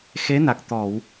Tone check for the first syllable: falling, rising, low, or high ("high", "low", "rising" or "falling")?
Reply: rising